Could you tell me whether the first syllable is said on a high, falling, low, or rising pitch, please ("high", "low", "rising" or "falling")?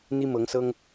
high